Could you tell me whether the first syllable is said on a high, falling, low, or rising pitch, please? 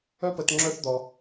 high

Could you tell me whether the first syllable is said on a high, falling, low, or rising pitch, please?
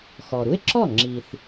low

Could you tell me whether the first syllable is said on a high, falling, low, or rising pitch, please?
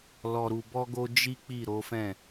low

